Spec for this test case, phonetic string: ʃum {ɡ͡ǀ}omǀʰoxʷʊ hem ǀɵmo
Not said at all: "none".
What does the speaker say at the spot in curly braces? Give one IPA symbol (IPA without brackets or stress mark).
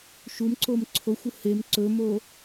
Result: ǀ